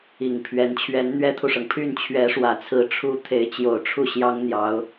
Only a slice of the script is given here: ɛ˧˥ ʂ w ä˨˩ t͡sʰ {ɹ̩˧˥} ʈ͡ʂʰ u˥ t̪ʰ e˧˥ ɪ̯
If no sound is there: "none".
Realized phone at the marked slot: ɹ̩˧˥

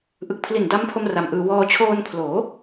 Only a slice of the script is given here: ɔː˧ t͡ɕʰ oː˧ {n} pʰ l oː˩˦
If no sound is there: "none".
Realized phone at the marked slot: n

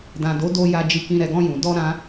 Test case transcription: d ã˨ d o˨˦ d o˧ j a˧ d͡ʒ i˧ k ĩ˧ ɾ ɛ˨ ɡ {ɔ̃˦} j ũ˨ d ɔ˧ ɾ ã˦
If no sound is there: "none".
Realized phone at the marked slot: ɔ̃˧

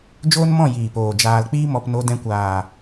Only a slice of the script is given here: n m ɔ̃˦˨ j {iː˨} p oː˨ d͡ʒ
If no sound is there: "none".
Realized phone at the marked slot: iː˨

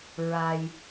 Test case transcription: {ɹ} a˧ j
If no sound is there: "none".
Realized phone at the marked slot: ɹ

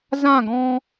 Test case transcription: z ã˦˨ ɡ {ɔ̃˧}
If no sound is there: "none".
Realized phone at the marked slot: ɔ̃˧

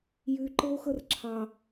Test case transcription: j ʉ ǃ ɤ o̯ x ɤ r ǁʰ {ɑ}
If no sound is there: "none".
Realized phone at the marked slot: ɑ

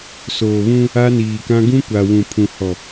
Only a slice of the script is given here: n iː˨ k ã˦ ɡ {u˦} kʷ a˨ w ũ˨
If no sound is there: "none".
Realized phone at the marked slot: ũ˦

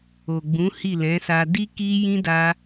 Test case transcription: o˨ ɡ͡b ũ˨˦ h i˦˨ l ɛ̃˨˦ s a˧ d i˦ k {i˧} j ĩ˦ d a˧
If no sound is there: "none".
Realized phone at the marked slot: i˦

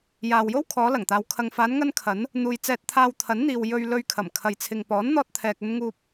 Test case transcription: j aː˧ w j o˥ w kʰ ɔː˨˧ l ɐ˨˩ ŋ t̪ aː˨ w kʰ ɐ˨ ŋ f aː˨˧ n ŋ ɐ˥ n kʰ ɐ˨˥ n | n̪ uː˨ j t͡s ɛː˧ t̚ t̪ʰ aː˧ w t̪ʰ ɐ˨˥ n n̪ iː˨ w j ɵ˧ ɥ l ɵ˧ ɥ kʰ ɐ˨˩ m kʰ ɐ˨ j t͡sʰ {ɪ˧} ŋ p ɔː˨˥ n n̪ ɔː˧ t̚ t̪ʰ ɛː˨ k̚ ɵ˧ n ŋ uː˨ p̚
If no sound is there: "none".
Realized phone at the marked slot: ɪ˨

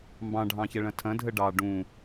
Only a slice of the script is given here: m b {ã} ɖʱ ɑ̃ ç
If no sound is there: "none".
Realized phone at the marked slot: ɑ̃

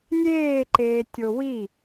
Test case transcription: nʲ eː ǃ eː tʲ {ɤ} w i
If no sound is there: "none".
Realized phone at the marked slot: o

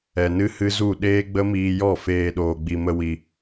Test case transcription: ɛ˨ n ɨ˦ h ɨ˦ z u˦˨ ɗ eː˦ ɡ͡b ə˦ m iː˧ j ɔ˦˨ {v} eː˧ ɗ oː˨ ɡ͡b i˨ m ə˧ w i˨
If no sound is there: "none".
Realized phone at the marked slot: f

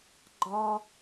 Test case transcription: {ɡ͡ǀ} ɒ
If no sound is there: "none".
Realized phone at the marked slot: ɡ͡ǃ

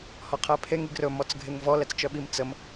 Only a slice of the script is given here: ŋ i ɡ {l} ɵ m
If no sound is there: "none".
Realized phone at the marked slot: r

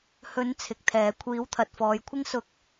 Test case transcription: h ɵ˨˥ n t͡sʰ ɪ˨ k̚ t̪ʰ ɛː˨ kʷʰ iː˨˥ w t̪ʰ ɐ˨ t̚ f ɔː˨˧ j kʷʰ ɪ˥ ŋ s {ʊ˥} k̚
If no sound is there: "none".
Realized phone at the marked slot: ʊ˥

